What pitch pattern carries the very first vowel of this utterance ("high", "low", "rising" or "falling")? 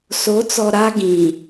rising